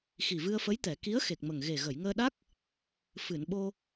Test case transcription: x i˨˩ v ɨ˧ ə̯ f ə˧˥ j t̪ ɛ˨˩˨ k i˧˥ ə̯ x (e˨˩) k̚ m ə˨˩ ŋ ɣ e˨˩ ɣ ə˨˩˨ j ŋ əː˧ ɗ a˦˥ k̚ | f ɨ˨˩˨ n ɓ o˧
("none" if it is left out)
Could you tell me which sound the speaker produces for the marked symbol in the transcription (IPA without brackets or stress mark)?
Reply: e˨˩